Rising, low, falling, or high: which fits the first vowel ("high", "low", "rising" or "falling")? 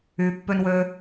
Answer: low